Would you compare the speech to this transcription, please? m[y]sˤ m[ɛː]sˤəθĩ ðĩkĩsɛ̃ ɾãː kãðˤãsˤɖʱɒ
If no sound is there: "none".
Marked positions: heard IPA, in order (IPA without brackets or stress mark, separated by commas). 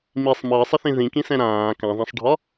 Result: i, əː